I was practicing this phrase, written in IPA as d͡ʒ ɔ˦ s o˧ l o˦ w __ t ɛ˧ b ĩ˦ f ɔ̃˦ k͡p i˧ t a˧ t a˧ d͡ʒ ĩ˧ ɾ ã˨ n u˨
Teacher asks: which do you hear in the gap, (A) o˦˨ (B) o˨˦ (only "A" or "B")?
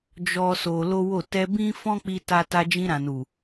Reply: A